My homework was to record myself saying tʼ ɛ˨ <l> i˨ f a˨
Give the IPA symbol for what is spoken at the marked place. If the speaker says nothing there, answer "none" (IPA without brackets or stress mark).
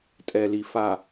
l